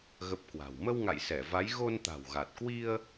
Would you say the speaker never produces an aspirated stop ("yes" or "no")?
yes